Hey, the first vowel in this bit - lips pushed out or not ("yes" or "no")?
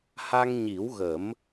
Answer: no